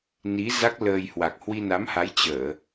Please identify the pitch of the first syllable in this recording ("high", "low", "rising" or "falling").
rising